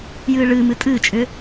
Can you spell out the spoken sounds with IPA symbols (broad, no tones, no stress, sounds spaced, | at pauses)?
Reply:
j ɨː ɭ ɨ m ɨ tʼ ɨː t͡ʃʼ ʏ